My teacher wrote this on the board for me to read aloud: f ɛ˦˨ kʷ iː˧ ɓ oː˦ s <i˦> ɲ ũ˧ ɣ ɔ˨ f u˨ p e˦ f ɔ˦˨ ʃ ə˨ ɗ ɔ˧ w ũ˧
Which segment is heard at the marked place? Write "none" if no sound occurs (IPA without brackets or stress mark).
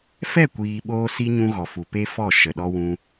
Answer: i˦